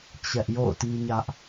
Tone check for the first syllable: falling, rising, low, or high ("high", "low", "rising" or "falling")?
high